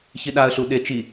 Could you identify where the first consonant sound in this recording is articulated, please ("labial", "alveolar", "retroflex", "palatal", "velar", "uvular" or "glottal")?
palatal